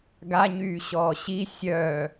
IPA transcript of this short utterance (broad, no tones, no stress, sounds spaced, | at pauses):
ɡ a ɲ yː ɕ ɔː ɕ i sʲ œ